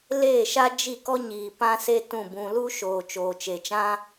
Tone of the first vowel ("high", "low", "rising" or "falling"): falling